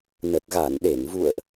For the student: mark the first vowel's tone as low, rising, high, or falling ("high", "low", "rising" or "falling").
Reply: low